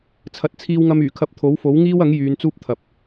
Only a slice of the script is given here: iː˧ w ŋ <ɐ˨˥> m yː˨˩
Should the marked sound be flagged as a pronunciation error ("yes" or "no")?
yes